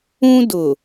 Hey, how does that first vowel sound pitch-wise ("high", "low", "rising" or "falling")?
high